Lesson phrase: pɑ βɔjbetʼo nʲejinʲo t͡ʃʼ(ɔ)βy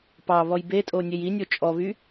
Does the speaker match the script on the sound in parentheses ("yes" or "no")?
yes